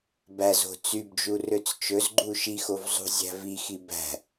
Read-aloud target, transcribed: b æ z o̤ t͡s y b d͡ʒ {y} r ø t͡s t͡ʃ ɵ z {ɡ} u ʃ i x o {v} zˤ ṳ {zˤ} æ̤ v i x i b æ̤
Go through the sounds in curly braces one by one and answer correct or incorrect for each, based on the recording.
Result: incorrect: u, incorrect: ɡ͡ǃ, correct, incorrect: zʲ

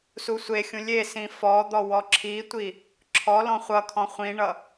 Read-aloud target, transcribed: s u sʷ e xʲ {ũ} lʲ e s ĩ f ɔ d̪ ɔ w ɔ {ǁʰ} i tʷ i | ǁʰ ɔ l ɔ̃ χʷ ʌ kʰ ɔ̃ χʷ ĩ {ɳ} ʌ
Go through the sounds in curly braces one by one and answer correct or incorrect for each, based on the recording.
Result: correct, correct, correct

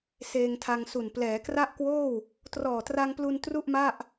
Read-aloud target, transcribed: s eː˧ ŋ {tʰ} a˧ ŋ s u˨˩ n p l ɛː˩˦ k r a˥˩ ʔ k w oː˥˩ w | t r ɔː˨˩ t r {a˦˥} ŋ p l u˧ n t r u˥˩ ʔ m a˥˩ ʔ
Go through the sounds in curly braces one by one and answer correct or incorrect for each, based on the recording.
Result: correct, incorrect: a˧

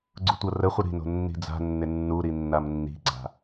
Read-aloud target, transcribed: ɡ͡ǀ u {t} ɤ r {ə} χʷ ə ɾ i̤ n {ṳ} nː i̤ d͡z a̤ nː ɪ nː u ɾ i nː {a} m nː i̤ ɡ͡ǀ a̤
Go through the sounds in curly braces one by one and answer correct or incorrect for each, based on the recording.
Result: incorrect: tʷ, correct, incorrect: o̤, correct

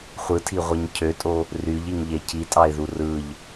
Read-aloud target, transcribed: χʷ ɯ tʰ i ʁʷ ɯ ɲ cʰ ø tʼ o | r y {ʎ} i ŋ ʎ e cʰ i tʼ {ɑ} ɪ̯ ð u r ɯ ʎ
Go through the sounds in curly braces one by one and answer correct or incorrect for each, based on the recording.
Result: correct, correct

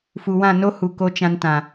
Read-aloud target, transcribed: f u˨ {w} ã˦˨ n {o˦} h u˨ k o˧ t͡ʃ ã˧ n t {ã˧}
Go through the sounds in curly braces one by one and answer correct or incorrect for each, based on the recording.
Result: correct, correct, incorrect: ã˨

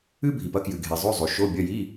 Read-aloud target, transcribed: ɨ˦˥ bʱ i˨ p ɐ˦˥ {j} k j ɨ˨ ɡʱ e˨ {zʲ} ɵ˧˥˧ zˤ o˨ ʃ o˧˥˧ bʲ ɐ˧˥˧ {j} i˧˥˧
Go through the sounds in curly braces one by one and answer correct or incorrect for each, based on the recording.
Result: incorrect: none, incorrect: zˤ, correct

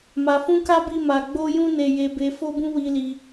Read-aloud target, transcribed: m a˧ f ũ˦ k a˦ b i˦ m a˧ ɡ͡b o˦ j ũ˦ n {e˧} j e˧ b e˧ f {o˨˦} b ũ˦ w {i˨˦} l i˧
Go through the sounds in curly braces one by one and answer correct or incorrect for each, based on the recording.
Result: correct, incorrect: o˦, incorrect: i˧

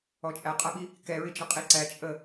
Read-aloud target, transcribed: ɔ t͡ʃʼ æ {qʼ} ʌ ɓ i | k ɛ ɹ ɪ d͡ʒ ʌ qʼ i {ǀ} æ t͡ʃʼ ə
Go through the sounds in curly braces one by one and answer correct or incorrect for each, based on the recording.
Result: correct, correct

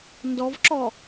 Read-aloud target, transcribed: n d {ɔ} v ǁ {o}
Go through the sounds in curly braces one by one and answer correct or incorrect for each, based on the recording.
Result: correct, incorrect: ɔ

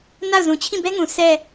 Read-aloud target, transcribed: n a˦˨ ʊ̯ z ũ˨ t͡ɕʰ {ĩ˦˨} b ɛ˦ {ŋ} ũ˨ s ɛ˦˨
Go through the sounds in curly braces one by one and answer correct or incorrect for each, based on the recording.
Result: correct, correct

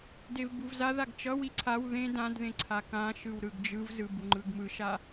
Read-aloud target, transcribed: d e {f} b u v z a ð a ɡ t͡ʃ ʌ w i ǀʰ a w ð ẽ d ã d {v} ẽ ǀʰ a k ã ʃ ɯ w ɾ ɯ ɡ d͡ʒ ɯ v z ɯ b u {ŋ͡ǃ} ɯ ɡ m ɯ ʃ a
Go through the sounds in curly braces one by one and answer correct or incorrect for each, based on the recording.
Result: incorrect: v, incorrect: ð, correct

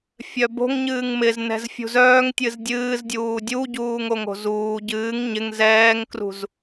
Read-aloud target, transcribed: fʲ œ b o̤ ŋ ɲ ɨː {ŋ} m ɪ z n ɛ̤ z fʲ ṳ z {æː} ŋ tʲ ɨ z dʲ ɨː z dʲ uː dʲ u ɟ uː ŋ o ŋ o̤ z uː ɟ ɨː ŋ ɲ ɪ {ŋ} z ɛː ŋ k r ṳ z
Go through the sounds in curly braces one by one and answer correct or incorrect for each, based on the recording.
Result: correct, incorrect: œː, correct

